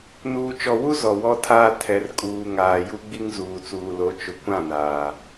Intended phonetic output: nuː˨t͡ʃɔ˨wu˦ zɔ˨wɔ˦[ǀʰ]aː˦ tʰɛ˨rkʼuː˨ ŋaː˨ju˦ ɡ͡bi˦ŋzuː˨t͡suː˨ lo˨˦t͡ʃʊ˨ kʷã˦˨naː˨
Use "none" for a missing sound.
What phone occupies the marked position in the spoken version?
tʰ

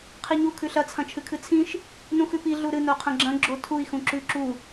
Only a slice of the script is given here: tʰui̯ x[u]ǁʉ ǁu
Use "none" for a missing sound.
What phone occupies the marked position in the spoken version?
ũ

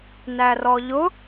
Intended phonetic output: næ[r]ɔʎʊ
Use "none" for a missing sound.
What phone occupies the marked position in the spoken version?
r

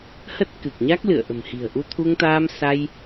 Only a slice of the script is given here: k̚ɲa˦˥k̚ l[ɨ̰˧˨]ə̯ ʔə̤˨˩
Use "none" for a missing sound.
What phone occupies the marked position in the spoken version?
ɨ̰˧˨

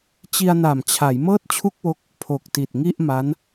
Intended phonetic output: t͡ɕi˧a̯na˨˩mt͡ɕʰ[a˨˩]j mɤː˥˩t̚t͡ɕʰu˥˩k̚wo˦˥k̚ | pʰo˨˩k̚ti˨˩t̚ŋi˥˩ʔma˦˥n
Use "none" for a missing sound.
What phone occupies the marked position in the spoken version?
a˩˦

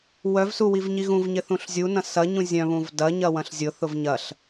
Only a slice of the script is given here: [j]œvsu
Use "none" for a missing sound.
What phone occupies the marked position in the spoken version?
w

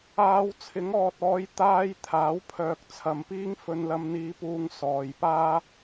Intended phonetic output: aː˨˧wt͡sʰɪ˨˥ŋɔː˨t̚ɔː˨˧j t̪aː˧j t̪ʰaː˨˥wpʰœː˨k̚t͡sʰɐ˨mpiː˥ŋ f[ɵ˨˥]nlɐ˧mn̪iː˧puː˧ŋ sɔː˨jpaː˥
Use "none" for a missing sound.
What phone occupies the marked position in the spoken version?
ɵ˧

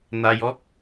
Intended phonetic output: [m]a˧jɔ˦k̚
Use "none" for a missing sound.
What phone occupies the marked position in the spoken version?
n̪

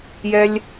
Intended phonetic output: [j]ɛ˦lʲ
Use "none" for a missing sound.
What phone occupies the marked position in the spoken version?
j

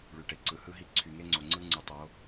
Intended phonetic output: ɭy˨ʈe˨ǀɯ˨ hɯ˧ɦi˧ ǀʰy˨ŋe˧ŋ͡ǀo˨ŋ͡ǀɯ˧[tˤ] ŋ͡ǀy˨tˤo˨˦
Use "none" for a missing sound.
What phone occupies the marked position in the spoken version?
none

